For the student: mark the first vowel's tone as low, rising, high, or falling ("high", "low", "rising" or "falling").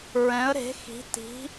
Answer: rising